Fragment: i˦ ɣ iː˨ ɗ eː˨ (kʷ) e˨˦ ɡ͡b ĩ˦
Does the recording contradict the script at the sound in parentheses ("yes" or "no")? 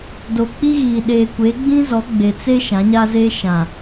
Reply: no